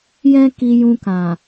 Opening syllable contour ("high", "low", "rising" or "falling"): high